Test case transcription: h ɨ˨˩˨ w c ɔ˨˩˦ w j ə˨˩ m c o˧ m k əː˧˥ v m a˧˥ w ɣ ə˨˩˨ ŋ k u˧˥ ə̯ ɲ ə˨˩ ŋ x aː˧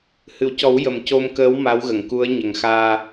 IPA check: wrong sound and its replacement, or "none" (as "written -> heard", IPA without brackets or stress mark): v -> w